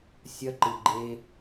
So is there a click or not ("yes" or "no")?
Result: yes